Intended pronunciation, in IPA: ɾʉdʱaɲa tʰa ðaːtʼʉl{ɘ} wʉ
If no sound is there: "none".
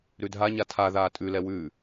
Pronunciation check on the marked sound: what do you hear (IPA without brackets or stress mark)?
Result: ɛ